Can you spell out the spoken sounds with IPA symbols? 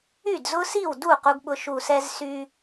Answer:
y˥˩dzʊ˦si˥˩wdu˥˩ qu˦ɡɓʊ˦ ʃu˧˩sɛ˦zsy˦

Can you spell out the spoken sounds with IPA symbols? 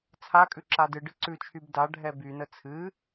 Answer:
t͡sʰakʼʉ ǁadɨɖɨ ǀʉt͡ʃʰyb da ɖʱɛbynə t͡sʰɨ

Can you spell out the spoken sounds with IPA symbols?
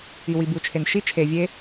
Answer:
i˨wi˨bu˨t͡ʃʰe˨n ʃi˦ t͡ʃʰe˨vʲe˦

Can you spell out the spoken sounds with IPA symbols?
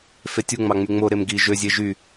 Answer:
fetʲuŋ͡mɑ ŋ͡myŋ͡moɾem ɡi ʒøzʲe ʒy

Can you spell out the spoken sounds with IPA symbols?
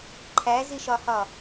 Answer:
ǃʰæziʃɒhɒ

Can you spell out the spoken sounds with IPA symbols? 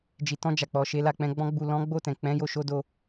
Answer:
d͡ʒi˨tɔ̃˧d͡ʒa˨ k͡pɔ˨ʃe˨˦la˦˨k͡pɛ̃˨˦ ɡ͡bɔ̃˦ɡ͡bu˦˨ lɔ̃˨˦ɡ͡bo˦˨tɛ̃˨ k͡pɛ̃˨˦jo˦˨ ʃo˨˦do˧

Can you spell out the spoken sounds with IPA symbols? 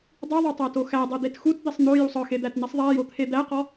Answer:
dˤiðˤotˤæto xædˤed̪et xutd̪isˤ n̪ojusˤ ɒxed̪ætnisˤ ðˤæjot̪ʰe d̪æqɒ

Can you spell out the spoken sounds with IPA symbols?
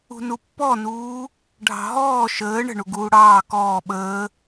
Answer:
ṳnupːɔnuː | ɖʱɑ̤ɦɔː ʃəː ɳə̤ɳu ɡuːɽɑː kɔː ɓəː

